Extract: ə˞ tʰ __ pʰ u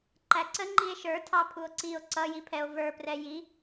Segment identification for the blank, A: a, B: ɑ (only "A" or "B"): B